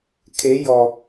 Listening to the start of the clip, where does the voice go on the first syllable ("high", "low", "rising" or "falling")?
rising